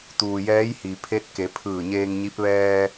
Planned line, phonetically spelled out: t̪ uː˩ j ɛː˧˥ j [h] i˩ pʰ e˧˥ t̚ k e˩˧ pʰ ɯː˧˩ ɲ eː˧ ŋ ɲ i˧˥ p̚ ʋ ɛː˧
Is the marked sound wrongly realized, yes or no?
no